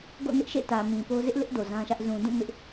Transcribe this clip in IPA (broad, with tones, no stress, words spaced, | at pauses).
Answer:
ɡo̰˦˨nɪ˦ʔʃḛ˦˨ tä˨mĩ˨po˦ zɪ˦ʔlɪ˦ʔ do˨zã˦ʃä˦ʔ zũ˨dũ˦˨ mɪ˦ʔ